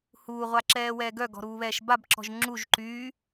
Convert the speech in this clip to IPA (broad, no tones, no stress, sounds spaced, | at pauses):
h uː ʁʷ a ǁ ɛː w ɛː ɡ œ ɡ ɔ̤ ɾ uː β ɛː ʃ b a b ǁ ɔ̤ ʒ ŋ͡ǁ u ʒ ǃ yː